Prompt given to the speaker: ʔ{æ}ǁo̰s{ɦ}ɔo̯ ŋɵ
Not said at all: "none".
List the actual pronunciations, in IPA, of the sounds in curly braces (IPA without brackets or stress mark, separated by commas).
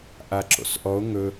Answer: a, ʔ